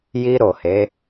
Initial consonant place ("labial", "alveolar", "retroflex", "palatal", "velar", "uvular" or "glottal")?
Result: palatal